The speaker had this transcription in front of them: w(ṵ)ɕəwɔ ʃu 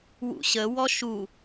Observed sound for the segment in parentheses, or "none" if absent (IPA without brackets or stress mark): ṵ